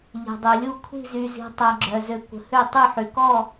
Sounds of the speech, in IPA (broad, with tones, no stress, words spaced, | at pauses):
ʎi̤˨dˤy˨lʲu˦˨ kʷʰi̤˦˨zy˨zi̤˨ tˤa˨ɡ͡ǁœ˨zø˨ kʷə̤˨hø˦˨tˤø˦˨ħy˨ kɔ˦˨